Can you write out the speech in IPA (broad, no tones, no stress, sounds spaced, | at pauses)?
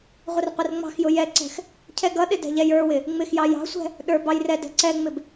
ʁʷ ɪ r qʷ ɪ r ŋ͡m ɑ̤ x j ʊ j ɛ ǀ ɛ̤ x | cʰ ɛ ɡ ʌ ɗ ɪ d ɛ̤ ʎ ɛ j ə˞ w ɪ | ŋ͡m ɪ x j ɑ j ɑ̤ sʷ ɛ̤ | ɗ ə˞ b ɑ j r ɛ d ɛ̤ ǀ ɛ ŋ͡m ɪ b